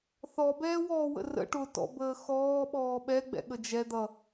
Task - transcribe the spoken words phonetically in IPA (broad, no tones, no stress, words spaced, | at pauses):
θɔbɛːwɔːwə̰ rə̰ ʈʊtɔ̰bəː xɔːɓɔː ɓɛɡ͡bɛ̰ɠə d͡ʒɛ d̪ʌ